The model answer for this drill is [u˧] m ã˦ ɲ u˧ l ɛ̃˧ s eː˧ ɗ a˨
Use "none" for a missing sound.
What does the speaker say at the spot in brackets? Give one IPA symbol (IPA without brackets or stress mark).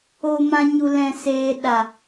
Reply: o˧